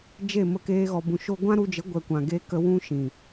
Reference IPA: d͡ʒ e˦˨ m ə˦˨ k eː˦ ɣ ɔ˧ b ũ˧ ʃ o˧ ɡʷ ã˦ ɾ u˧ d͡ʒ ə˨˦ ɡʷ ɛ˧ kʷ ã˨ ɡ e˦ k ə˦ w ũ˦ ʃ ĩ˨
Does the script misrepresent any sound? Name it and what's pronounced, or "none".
none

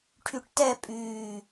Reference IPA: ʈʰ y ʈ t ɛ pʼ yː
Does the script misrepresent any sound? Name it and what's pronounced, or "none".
none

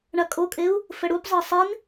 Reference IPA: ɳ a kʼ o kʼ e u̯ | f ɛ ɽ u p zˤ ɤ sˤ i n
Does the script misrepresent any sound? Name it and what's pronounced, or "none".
none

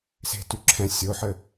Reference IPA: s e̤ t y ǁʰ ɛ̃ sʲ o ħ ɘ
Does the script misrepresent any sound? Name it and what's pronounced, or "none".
none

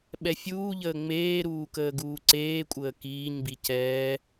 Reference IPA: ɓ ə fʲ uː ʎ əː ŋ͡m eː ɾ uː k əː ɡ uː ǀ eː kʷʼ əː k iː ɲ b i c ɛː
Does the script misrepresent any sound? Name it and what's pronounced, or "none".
ə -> ɛ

